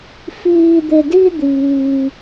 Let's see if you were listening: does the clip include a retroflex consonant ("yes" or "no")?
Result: no